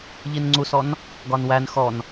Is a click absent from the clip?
no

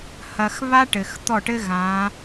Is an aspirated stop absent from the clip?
yes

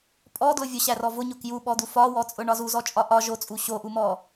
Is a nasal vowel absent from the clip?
yes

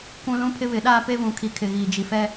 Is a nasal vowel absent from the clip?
no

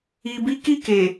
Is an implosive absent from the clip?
yes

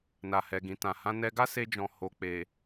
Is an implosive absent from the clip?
yes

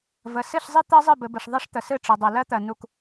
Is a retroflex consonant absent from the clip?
no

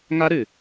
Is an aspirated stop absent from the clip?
yes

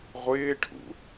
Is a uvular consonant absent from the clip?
no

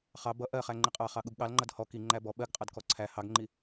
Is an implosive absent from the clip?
no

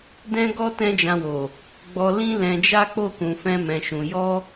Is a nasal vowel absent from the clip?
no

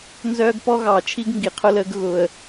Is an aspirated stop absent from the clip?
no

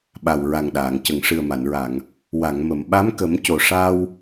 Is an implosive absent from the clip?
no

